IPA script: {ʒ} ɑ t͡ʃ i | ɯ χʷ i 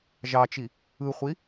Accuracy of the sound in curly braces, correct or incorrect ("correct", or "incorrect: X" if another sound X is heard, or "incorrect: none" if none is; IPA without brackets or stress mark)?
correct